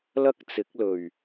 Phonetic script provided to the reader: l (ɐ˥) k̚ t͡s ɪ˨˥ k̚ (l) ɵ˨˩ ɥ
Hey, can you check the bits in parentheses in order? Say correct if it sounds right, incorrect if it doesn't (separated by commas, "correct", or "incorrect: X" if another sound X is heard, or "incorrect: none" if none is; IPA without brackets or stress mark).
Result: correct, correct